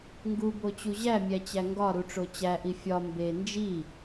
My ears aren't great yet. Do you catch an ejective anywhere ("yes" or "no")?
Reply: no